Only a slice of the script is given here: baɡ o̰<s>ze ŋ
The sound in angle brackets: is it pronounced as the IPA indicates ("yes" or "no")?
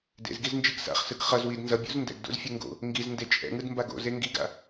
no